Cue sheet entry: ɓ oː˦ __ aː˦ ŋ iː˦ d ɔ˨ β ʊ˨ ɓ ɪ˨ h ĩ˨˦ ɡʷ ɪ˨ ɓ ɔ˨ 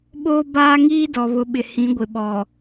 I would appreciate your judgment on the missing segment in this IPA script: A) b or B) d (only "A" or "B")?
A